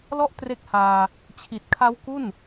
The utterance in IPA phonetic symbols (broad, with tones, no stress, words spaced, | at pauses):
lɔ˥˩ʔtre˦˥k̚haː˧ | t͡ɕʰi˨˩t̚kʰa˦˥w ku˥˩n